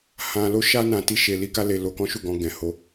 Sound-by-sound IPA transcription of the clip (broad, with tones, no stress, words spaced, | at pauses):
hã˧lo˦ʃa˦ nã˧ti˦ʃe˧ li˦ka˦le˧ lo˧kɔ̃˦ʃu˦˨ɡɔ̃˧ ɡɛ̃˨ho˧